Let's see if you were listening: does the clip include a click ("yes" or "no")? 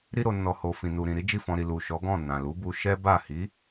no